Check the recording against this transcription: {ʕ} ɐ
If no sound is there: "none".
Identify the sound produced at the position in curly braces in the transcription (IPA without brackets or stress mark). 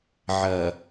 ʕ